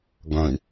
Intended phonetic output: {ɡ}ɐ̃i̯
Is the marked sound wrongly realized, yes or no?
no